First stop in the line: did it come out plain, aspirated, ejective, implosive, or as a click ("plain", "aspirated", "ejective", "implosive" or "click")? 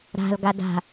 plain